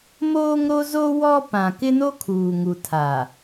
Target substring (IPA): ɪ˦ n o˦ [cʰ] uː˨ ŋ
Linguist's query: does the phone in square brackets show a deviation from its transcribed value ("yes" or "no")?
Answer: yes